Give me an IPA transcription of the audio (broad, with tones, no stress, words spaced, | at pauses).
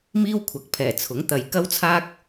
miː˥wkʷʰɐ˨˥k̚pʰɛː˨˩ t͡sʰʊ˨˥ŋ t̪ɐ˨jkɐ˥wt͡sʰaː˥k̚